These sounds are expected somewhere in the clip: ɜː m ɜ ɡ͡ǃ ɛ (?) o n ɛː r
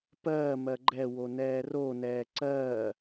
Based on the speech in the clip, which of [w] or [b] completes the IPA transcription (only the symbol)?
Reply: w